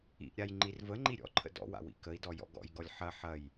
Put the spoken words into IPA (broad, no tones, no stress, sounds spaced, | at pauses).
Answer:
ḭ ʔ ɾʲ a j ŋ͡ǃ i r v ə ŋ͡ǃ i ɾʲ ɔ̰ ǃʰ ə̰ d ɔ̰ w a̰ w ḭ k ə i̯ d ɔ j ɔ̰ ɡ ɔ̰ j ɡ ɔ lʲ ħ ɐ ħ ɐ j